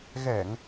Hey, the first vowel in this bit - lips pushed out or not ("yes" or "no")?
no